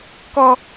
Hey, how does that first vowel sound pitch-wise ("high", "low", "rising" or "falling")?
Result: high